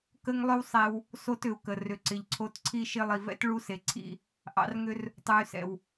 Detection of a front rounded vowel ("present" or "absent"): present